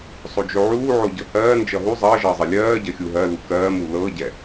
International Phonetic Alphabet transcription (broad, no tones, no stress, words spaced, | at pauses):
sˤod͡ʒoʕuːʕo ɟɤhɜːnd͡ʒʌ ɦu zˤʌː ʒʌːzˤɜlʲɜːɟɜ xʲuɦɜlu kɜːmu lɤɟɛ